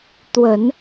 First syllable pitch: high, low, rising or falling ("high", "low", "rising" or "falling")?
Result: low